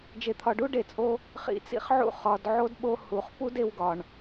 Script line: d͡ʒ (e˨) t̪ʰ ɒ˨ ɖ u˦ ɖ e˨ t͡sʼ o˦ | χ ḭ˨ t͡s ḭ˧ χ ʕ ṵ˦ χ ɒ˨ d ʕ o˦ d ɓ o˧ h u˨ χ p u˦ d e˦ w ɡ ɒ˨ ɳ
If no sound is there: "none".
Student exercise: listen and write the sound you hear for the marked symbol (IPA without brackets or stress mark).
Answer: e˨